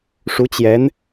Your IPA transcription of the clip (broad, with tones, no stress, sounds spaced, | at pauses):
ʂ u˧˥ t͡ɕ j ɛ˧˥ n